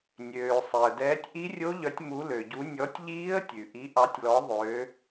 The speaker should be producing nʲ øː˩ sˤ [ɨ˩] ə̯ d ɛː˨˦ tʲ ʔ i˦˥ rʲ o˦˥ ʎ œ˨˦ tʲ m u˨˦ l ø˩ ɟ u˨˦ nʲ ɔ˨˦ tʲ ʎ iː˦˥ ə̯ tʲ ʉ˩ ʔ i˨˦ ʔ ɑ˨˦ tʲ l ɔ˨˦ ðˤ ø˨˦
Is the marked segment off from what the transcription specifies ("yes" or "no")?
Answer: yes